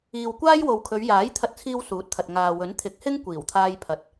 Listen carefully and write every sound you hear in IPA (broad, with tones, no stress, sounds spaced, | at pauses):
iː˨ w kʷ aː˥ j w o˨ w kʰ ɵ˨˧ ɥ j aː˨˥ j t̪ʰ ɐ˧ t̚ t͡sʰ iː˧ w s uː˨˥ t̚ t̪ʰ ɐ˨ t̚ ŋ aː˨ w ɵ˨˥ n t̪ʰ ɪ˨˥ k̚ h ɪ˥ ŋ kʷ iː˨˩ w t̪ʰ aː˧ j pʰ ɐ˨ t̚